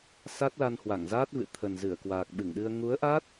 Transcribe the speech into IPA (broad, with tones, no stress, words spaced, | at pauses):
sa˦˥t̚la˧nhwa˧˩ŋzaː˦˥t̚ vɨ̰˧˨t̪ʰə˨˩nzɨ˧˩ə̯kwaː˨˩k̚ ɓɨ˧˩ŋɗɨ˧ə̯ ŋu˨˦ə̯ʔa˦˥t̚